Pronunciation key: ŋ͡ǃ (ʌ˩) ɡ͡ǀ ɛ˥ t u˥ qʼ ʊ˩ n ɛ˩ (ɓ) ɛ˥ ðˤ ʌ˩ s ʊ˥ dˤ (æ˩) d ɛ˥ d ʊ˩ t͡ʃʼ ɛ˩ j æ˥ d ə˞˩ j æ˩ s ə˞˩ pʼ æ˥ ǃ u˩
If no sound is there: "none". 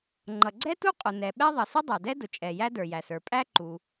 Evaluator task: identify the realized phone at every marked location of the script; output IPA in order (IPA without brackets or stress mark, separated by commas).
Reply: ʌ˩, ɓ, æ˩